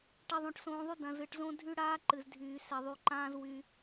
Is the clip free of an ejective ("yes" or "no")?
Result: yes